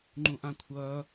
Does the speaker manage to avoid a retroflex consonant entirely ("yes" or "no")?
yes